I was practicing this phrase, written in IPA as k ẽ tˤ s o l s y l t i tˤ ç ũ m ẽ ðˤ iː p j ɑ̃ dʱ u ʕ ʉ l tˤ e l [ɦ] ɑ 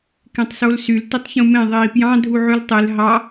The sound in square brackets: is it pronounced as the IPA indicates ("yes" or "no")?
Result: yes